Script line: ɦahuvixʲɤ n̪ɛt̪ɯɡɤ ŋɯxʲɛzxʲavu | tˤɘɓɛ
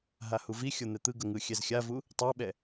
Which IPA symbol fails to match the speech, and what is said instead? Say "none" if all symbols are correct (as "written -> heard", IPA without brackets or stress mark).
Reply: ɘ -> ɛ